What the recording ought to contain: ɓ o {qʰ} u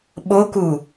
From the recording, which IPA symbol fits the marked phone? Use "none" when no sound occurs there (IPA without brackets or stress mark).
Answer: k